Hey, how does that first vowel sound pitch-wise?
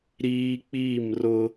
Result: high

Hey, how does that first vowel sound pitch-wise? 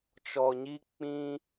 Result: low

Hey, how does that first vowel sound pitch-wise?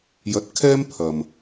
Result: rising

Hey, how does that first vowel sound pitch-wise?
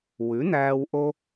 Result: rising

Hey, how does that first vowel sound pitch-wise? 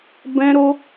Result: high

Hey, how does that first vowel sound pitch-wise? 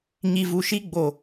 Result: low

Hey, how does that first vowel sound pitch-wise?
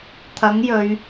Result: rising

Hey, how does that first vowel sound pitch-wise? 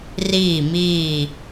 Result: falling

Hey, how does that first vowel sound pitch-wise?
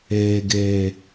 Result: low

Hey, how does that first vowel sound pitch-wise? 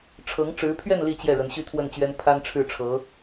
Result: rising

